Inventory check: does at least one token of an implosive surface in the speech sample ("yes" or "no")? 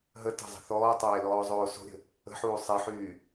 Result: no